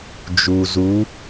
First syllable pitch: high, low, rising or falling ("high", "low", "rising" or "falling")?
low